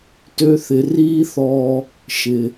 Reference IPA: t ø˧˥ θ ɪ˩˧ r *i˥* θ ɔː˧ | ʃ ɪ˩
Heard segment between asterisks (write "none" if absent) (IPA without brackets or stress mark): iː˥